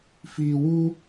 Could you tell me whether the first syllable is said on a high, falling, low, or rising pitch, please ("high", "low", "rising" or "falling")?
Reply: low